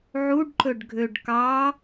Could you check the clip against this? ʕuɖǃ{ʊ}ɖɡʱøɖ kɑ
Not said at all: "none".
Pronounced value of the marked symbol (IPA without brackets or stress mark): ɵ